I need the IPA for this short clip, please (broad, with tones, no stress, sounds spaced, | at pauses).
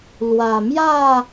l w a˨˩ m j a˥˧